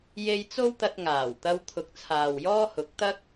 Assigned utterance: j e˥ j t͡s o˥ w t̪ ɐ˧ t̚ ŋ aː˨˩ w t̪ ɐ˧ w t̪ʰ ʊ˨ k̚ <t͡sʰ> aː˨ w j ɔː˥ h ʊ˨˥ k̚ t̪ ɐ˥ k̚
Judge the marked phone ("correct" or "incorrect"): correct